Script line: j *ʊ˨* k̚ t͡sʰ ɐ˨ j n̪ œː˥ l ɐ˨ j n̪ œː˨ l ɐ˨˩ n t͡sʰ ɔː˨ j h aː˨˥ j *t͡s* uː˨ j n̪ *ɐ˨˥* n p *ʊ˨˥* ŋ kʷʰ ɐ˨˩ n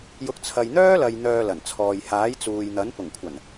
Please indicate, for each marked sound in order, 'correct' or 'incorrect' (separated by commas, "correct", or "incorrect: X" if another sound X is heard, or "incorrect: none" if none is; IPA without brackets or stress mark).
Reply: correct, correct, correct, incorrect: ʊ˨˩